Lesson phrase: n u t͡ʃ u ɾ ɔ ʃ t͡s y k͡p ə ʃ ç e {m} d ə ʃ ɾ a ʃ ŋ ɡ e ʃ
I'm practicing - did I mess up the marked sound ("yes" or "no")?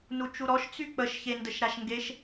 yes